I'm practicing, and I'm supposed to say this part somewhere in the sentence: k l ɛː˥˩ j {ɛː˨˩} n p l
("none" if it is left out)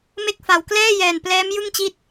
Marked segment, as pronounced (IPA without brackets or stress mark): ɛː˨˩